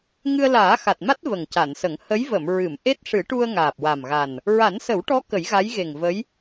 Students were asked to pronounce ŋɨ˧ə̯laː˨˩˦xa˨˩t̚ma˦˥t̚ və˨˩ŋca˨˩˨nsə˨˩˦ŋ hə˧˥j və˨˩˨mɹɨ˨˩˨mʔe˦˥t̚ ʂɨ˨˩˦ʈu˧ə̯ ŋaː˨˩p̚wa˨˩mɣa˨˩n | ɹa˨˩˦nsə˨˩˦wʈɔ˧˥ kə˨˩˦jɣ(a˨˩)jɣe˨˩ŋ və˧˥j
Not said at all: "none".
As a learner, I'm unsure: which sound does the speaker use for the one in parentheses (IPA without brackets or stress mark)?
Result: a˧˥